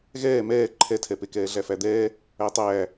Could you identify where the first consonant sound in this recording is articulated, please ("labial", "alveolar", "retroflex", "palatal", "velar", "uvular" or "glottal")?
velar